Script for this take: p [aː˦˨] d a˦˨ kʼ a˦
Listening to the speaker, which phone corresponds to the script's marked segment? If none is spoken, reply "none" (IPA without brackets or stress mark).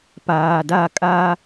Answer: aː˨